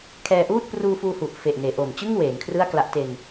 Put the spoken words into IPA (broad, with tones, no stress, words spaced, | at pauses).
kʰɛː˧ʔuː˥˩t̚ pruː˧fuː˧hu˨˩ʔ fe˨˩ʔneː˩˦ʔo˨˩m t͡ɕɯ˥˩ŋ weː˩˦n kʰrɯ˥˩a̯kla˦˥ʔte˧n